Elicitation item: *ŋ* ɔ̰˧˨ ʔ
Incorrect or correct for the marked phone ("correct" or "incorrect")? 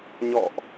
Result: incorrect